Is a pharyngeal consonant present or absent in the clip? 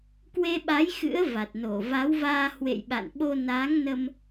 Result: absent